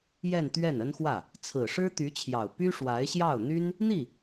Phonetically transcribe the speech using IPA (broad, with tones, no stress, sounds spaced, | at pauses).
j ɛ˥˧ n t̪ ɥ ɛ˥˩ n ə˥ n x w ä˥˩ | t͡sʰ ɹ̩˨˩ ʂ ɻ̩˥ t̪ y˧˥ t͡ɕʰ j ɑ˨˩ ʊ̯ p y˥ ʂ w a˧˥ ɪ̯ ɕ j ɑ˥˩ ʊ̯ n̪ y˥ n | n̪ i˥˩